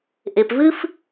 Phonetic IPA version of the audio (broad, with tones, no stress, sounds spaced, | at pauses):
ʔ e˨ p v ɨː˦ f